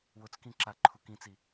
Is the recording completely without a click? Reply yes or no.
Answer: no